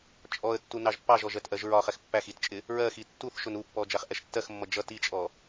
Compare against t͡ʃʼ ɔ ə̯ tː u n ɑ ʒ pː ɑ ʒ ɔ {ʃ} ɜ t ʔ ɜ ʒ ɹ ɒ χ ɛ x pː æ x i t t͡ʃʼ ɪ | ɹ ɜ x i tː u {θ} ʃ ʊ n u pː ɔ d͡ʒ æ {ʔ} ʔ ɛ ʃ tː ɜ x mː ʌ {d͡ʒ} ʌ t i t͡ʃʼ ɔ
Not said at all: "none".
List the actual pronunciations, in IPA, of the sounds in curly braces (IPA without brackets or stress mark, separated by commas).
ʒ, θ, χ, d͡ʒ